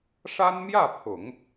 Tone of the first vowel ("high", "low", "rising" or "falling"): high